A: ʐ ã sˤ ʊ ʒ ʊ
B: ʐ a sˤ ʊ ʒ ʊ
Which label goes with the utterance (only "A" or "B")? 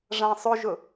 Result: A